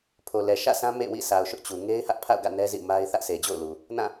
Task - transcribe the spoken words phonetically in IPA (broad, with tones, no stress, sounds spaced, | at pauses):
pʰ o˨ l ɛ˨ ʃ ä̰˦˨ s ã˦ m ḛ˦˨ w ḭ˦˨ s a˨ ʊ̯ ʃ ʊ˦ ʔ t͡ɕ u˨ ŋ e˦ ɪ̯ h ä˦ ʔ pʰ a̰˦˨ ʊ̯ ɡ ä̰˦˨ n ɛ˦ z ḭ˦˨ m a˦ ɪ̯ θ ä˦ ʔ sʰ e˨ d͡ʑ o̰˦˨ ʊ̯ l u˨ | n ã˦˨